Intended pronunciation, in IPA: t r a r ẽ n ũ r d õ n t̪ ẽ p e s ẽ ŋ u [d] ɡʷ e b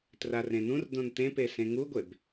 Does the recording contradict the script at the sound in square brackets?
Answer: yes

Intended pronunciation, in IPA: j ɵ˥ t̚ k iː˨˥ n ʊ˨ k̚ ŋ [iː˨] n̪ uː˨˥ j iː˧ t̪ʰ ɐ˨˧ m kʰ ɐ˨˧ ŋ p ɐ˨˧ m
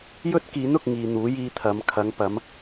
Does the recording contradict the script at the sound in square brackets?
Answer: no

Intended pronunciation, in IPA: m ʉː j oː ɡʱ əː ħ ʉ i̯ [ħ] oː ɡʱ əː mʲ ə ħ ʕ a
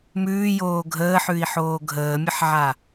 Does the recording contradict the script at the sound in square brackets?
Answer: no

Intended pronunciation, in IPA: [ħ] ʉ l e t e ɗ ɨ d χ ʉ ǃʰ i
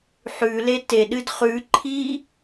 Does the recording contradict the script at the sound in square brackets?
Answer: no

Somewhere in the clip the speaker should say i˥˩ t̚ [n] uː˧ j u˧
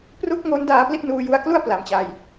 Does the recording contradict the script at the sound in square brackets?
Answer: no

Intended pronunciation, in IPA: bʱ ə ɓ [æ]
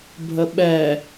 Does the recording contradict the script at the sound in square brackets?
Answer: yes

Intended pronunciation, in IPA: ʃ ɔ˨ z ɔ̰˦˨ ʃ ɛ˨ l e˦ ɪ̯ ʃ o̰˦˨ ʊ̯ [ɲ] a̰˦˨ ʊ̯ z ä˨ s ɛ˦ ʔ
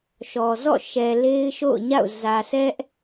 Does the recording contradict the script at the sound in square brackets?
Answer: no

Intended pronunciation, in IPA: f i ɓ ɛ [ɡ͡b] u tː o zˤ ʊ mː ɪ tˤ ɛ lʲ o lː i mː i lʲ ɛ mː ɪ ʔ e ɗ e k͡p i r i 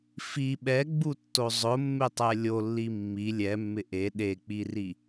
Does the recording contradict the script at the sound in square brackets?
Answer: no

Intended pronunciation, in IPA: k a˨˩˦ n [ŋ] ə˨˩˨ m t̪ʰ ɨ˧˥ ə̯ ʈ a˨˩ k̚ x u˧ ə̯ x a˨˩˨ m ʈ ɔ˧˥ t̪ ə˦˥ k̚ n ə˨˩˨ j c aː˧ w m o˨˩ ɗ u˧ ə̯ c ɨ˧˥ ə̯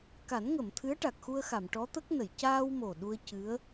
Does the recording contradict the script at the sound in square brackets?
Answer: no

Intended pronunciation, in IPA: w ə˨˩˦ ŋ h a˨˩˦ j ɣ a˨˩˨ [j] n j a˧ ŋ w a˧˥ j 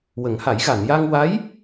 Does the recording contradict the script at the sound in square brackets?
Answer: yes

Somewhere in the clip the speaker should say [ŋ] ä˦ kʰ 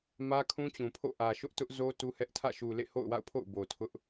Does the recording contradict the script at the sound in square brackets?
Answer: yes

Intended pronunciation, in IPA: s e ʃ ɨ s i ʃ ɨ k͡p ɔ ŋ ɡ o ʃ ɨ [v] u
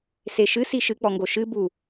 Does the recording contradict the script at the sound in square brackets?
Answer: yes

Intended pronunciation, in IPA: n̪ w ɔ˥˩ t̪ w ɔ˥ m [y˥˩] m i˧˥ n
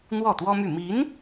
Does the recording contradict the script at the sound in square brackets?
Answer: no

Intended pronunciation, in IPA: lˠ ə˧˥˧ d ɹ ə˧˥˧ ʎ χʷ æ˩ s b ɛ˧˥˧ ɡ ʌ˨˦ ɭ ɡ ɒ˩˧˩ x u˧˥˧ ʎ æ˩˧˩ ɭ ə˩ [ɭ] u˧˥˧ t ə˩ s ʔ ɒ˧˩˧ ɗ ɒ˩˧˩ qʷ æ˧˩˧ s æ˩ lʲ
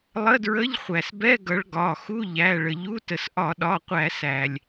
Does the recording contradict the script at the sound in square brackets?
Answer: yes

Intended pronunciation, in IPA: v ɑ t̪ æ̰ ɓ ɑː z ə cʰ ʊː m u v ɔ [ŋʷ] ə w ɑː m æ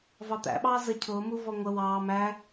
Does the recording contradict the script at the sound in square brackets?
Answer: no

